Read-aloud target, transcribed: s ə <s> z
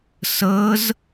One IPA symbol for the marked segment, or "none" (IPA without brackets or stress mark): none